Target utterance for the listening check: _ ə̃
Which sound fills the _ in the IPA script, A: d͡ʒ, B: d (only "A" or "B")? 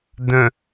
B